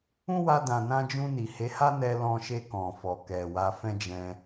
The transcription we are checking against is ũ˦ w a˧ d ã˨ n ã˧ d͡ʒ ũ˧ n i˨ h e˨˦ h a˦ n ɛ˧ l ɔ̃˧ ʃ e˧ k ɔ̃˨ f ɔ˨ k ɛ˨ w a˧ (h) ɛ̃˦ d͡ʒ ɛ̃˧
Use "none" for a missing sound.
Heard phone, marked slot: f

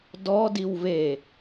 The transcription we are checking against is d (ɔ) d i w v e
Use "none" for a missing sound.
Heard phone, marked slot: ɔ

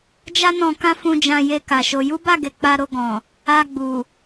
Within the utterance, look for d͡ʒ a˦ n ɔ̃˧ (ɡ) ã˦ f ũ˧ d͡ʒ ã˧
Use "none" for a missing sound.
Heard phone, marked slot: k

